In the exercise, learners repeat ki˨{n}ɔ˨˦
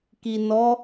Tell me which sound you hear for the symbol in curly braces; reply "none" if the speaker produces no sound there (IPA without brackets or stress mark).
n